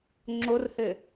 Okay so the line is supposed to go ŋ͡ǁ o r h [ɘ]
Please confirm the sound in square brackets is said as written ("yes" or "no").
yes